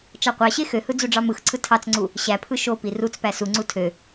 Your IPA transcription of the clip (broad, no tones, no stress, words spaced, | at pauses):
t͡ʃɑqʷɑɕe xøhɯ d͡zuɖ͡ʐɑmɯxǀʰɯ tʰɑt͡sŋ͡ǀu | ɕæpʰɯ ʃopi rut͡spæ suŋ͡ǀu tʰø